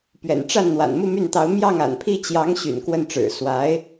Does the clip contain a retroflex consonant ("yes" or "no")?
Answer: yes